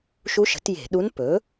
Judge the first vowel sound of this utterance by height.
high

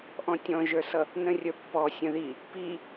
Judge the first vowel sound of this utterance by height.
mid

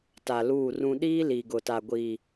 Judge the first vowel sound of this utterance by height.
low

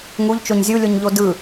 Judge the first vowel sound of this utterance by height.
high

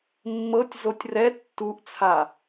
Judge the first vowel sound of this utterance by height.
mid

